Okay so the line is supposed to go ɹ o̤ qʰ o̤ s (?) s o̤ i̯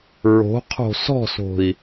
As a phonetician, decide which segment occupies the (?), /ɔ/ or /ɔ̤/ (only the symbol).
ɔ̤